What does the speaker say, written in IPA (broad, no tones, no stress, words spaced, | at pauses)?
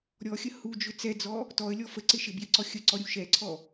ɾʲɔxʲə hud͡ʒʏ t͡sɛd͡zɔ | tɔə̯lʲɔ fəǀɪ ʃɪbjɪǀɔ xʲəǀɔɾʲu ʃɛǀʰɔ